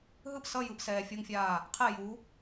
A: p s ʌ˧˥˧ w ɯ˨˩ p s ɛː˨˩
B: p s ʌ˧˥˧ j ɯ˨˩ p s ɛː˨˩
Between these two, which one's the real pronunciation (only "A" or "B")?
B